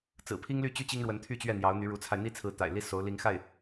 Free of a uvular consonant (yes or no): yes